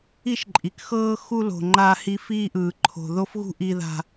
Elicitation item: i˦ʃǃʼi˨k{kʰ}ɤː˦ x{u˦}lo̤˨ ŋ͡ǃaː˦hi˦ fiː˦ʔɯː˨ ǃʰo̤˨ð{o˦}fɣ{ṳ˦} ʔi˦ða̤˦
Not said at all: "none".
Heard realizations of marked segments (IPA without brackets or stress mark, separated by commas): x, u˦, o˦, ṳ˦